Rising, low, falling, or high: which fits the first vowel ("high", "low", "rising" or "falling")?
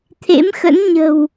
rising